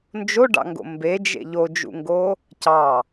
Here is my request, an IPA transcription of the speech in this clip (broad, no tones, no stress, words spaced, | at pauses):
nd͡ʒoɖɑ̰ŋɡo̰ mbed͡ʒḛ ʎod͡ʒṵŋɡo | cɑ